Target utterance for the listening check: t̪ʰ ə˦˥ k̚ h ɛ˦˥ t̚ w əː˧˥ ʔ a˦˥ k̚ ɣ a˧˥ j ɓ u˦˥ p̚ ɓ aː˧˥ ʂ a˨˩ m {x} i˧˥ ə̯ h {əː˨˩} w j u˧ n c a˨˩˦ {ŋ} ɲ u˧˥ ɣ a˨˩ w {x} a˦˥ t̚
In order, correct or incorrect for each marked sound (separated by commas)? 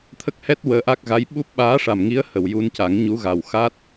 incorrect, incorrect, correct, correct